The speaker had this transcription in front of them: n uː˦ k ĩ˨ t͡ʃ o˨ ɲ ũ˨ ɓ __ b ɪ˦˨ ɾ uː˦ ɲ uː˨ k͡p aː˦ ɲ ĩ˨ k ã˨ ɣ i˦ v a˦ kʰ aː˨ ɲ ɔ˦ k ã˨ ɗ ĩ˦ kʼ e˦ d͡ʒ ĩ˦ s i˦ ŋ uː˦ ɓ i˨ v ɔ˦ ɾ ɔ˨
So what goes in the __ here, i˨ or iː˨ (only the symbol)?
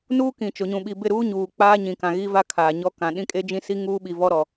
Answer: i˨